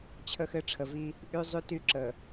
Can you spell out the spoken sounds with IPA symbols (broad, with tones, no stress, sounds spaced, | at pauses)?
t͡ɕʰ ə˦ x ɘ˦ ʈ͡ʂʰ ə˨ v i˦ | ʔ y˦ zˤ y˦ t y˦ ǁ ə˨